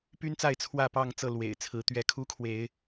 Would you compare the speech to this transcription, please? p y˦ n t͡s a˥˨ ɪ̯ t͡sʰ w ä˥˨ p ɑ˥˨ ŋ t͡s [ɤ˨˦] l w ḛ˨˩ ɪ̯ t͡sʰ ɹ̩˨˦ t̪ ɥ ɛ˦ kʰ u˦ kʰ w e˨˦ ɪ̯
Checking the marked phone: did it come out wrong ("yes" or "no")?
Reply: yes